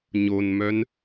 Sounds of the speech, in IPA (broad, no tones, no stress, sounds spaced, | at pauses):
ɲ o n m œ n